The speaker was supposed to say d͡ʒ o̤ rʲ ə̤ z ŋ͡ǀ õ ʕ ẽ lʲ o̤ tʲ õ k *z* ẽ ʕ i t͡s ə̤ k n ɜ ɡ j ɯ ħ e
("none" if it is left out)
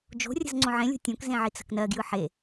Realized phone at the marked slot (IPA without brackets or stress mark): z